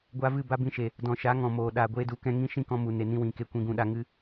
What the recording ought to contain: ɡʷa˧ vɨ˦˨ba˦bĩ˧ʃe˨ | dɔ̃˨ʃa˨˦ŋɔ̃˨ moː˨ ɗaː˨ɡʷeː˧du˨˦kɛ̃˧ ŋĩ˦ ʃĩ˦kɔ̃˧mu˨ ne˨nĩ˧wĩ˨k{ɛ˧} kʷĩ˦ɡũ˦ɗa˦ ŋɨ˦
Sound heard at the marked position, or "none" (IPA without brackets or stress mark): e˧